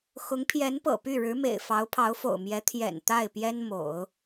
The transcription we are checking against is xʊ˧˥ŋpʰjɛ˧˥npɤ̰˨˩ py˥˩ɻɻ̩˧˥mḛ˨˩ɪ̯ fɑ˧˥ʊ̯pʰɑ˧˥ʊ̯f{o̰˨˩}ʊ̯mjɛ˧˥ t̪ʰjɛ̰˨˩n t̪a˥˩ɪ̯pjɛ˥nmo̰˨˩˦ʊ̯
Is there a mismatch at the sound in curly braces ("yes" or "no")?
no